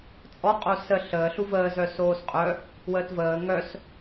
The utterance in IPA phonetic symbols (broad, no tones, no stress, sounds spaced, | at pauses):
t͡sʼ ɔ qʼ o s ə ɬ əː ɬ u v əː z œ s oː s qʼ œ | w əː t v əː ŋ œ s